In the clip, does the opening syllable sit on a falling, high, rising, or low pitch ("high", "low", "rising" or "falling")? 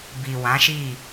low